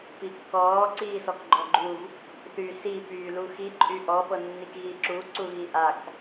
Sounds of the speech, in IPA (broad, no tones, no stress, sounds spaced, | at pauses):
p i kː ɔː ǀ iː s ɔ k ɡ͡ǃ ɔ ɡ͡ǃ u v | θ y s i p yː l u x i ǃʼ y ʔ ɔ p ɤ nː i k ɣ i ǁ u ǀ u ɣ i ʔ a k